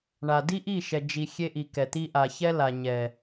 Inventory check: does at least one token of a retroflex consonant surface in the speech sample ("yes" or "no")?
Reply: yes